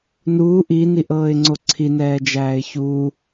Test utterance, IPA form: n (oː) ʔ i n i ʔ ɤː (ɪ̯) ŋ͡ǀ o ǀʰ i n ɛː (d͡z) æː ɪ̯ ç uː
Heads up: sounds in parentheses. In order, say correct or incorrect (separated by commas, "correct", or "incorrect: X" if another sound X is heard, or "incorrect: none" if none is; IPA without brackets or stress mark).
incorrect: uː, correct, incorrect: d͡ʒ